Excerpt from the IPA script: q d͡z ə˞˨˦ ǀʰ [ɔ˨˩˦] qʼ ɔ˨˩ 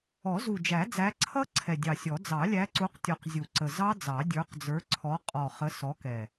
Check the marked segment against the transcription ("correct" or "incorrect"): incorrect